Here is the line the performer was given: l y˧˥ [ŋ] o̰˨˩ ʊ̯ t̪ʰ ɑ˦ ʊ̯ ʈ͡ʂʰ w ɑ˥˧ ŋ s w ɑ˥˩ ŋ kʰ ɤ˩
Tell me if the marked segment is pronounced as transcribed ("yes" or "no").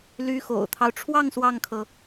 no